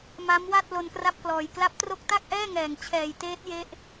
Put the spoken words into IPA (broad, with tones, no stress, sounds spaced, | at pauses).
m a˦˥ m w a˥˩ t̚ l o˧ n k r a˥˩ p̚ k l ɔː˨˩ j k l a˦˥ p̚ t r o˥˩ k̚ t a˥˩ k̚ ʔ ɛː˥˩ ŋ ɛː˨˩ ŋ t͡ɕʰ ɛː˨˩ j t eː˦˥ t̚ j e˦˥ ʔ